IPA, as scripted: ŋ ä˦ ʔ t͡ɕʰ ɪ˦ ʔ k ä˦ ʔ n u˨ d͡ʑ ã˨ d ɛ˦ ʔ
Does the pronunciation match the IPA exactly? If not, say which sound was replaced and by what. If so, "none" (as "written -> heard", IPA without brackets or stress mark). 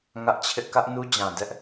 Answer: u˨ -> u˦